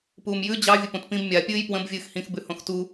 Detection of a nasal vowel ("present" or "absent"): present